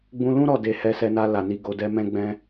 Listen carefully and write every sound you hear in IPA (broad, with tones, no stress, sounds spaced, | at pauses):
ɡ͡b ũ˧ l ũ˦ ɾ ɔ˦˨ d e˧ h ɛ˧ s ɛ˧ n a˧ l a˨ n i˧ ɡ o˧ d ɛ˦ m ɛ̃˦ ɡ͡b ɛ̃˦